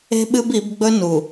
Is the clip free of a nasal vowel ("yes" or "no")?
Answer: yes